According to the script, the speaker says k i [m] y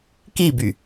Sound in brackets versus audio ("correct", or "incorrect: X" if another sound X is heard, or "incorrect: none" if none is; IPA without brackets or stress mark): incorrect: b